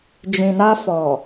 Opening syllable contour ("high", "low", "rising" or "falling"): low